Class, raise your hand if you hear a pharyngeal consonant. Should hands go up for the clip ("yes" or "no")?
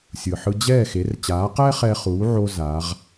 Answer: yes